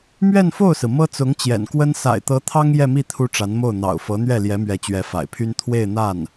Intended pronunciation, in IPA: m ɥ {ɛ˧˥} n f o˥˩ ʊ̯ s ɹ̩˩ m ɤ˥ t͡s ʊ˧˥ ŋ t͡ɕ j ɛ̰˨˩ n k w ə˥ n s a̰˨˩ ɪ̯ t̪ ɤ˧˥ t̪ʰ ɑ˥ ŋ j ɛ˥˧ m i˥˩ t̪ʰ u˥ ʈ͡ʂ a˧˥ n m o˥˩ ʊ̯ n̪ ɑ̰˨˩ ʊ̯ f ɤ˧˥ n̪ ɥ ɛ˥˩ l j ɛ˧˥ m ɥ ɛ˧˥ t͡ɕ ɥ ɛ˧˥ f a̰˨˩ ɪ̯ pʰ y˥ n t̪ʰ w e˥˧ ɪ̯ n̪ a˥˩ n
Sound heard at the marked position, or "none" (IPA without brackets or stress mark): ɛ˥˧